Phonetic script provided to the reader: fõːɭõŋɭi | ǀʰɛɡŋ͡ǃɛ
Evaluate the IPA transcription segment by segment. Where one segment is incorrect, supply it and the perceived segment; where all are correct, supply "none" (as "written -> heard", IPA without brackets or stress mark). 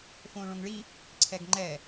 none